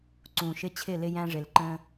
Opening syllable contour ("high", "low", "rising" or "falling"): low